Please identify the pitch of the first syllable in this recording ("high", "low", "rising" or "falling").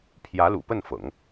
rising